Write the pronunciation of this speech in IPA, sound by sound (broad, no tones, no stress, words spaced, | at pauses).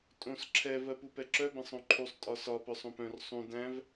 tʼõs ǁʰɛ vɜpupɛǁœ bɛ̃sˤõǃʰusˤ tʼɒsɒ pœsˤõpœ̃r sˤũ dæ̃v